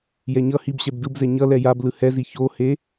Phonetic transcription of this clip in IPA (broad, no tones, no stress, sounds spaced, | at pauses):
j ɛ ɲ ʌ h i b ɕ ɛ b d ɯ b z ɛ ɲ ʌ l ɛ j a b l ɯ h ɛ z i ç o h e